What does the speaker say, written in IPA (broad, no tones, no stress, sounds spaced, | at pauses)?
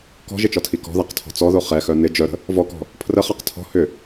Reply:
k ɔ̤ ʒ ɪ t͡ʃ ɔ tʰ i k ɔ̤ ð a q tʰ ɔ̤ t͡s ɔ ð o χ ɛ x œ n ɪ d͡ʒ œ ɾ ə̤ | v ɔ k ɔ̤ | pʰ r ə χ a q tʰ ɔ̤ h ʏ